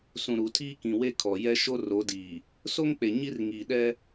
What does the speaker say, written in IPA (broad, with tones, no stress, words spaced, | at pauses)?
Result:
sũ˨ɾu˨ tʰiː˦kĩ˨we˦kʰɔ˨ jɛ˦ʃo˦ ro˨˦diː˨ | so˦ŋk͡pe˨ ɲi˦rŋiː˨ɗɛ˦